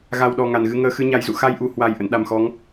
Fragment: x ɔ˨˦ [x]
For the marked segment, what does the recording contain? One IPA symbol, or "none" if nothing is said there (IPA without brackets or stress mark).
ŋ